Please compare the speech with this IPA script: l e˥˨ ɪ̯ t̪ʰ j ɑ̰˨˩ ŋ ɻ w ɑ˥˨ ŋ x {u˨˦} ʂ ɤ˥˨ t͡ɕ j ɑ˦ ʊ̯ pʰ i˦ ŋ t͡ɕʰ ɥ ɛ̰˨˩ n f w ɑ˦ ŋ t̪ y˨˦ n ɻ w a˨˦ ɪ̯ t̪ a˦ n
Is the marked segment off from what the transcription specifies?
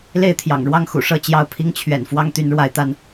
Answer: yes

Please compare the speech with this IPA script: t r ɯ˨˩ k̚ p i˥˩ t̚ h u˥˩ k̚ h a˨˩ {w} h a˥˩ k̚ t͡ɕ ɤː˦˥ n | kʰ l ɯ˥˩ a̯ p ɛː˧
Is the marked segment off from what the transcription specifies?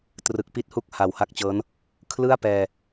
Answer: no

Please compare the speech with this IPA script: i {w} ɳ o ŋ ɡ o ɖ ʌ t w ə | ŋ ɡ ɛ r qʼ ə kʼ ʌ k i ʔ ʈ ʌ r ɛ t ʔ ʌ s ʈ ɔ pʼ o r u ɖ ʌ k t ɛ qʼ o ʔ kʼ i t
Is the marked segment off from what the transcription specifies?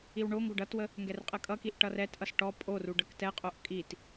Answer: no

